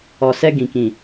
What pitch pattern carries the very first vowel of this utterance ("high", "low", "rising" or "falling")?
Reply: low